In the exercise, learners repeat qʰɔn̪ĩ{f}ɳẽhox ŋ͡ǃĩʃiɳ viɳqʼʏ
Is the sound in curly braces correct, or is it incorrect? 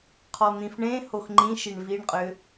correct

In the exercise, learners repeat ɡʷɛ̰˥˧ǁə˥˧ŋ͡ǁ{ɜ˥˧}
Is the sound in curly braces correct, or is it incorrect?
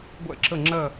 correct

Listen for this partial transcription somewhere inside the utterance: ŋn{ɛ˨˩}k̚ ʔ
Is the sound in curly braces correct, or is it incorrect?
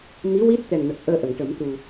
incorrect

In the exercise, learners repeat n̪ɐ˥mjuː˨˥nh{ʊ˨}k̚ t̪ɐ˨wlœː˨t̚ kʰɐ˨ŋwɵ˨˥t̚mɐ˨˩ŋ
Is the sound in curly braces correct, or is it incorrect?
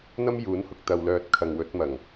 correct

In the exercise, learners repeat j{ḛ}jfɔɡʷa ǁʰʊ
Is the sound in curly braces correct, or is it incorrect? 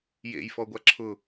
correct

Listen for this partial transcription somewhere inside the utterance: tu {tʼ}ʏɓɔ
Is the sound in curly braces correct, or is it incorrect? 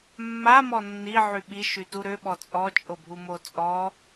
incorrect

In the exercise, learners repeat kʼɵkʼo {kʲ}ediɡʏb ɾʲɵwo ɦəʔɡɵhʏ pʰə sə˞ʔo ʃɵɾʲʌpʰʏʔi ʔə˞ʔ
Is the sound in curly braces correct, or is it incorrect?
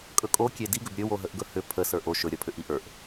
correct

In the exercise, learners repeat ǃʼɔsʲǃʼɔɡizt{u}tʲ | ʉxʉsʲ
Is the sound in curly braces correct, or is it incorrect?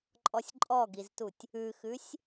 correct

